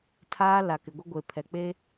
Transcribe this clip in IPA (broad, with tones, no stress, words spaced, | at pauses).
tʰaː˦la˨kɪ˨ɡʷɪ˦ ɡʷe˨pʰɛ˨k͡pe˦